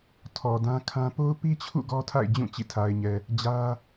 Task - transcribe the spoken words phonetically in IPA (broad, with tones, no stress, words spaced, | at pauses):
tʰɔ˨dã˦kʰã˦ po˦ʊ̯pi˦t͡ɕʰṵ˦˨ ɡɔ˦tʰa̰˦˨ɪ̯d͡ʑũ˦˨ t͡ɕḭ˦˨tʰa˨ɪ̯ɲɛ˨ | d͡ʑä˦